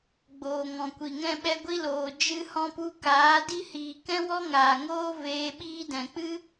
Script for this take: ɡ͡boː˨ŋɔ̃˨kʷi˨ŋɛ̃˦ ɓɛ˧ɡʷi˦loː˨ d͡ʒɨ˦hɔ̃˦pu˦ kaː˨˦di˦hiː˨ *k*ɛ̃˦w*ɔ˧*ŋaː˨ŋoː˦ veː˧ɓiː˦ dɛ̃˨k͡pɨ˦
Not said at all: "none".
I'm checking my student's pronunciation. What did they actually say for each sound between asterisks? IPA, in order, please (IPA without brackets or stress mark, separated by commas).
k, ɔ˦